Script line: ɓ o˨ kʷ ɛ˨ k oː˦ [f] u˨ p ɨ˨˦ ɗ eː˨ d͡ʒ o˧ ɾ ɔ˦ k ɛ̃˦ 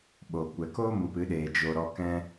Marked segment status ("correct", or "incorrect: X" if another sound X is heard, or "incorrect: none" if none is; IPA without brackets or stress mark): incorrect: m